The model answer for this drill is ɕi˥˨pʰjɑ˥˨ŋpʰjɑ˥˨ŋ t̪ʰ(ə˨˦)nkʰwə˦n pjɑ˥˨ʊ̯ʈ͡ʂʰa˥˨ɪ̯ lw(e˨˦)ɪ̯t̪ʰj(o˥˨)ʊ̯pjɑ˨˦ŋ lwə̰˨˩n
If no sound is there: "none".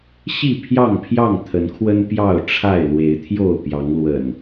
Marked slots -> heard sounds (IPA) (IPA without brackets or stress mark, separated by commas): ə˨˦, e˨˦, o˥˨